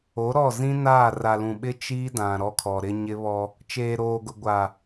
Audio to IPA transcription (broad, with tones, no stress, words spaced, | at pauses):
o˨˦ɾɔ˦˨zĩ˦naː˦˨ ra˨lũ˨ɓɪ˦ t͡ʃiː˦dã˨ ɾɔ˦kʰɔ˨ɾɪ˦ ɲɪ˦βɔ˦ | t͡ʃeː˨ɾoː˨ɡʊ˨ ɡʷa˨